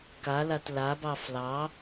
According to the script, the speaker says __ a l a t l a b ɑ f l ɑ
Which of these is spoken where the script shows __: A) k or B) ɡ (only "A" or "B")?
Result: A